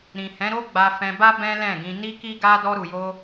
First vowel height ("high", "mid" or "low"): high